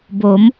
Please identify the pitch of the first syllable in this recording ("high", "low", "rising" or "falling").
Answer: rising